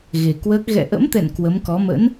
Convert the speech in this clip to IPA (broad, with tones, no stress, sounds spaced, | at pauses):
ɣ e˨˩ k w əː˦˥ k̚ ɣ ɛ̰˧˨ ʔ ə̰˧˥ m t̪ ɛ̰˧˨ n k w ə˨˦ m k ɔ˨˦ m ə̰˧˥ n